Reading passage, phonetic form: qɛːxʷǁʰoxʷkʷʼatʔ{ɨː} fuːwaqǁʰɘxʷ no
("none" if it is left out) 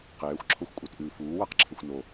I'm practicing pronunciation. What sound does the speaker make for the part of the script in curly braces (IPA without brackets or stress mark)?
ɨː